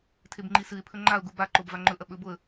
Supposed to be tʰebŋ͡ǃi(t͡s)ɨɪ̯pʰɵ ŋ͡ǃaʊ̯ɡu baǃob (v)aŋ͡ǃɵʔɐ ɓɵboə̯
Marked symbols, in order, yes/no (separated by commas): no, yes